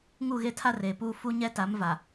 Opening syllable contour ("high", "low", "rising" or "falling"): falling